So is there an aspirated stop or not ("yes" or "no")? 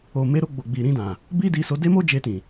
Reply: no